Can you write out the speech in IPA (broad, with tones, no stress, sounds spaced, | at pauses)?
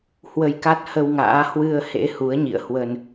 h w ə˧ j k a˦˥ t̚ h ə˧ w ŋ a̰ː˧˥ h w ɨ˧ ə̯ h ḛ˧˥ h u˨˦ ə̯ ɲ ḭ˧˨ ə̯ h w ə˧ n